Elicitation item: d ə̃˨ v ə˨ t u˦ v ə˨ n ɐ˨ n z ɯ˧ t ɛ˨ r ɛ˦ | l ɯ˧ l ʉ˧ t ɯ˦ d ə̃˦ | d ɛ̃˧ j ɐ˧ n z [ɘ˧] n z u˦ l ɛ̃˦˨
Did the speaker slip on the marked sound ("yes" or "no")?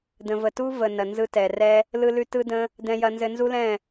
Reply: no